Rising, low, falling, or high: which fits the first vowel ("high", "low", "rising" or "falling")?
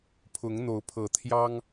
rising